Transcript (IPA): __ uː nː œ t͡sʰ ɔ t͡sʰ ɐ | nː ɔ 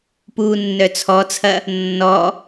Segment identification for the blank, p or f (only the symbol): p